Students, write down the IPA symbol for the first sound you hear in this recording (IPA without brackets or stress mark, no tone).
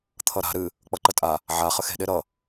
t̪ʰ